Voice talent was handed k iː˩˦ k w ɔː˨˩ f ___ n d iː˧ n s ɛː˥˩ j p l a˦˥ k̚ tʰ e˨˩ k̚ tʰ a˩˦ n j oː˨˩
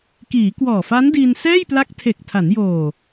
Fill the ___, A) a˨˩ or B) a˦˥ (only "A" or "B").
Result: B